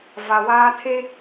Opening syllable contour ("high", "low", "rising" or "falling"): low